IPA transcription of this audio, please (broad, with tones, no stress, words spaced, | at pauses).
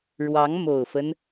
ɻwɑ˧˥ŋmo˨˩ʊ̯fə˦n